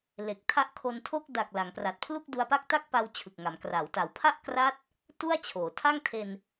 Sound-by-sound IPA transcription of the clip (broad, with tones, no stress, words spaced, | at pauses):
le˨˩k̚tʰa˦˥ʔkʰo˧ntʰo˥˩k̚ da˨˩k̚ la˩˦ŋpra˨˩t̚pʰlu˥˩k̚ du˧a̯pa˥˩k̚ta˥˩k̚pa˧w t͡ɕʰɯ˨˩k̚ŋa˩˦m kra˩˦w ta˩˦wpʰa˥˩ʔkra˦˥t̚ | tu˥˩a̯t͡ɕʰoː˩˦ tʰa˥˩ŋtʰe˧n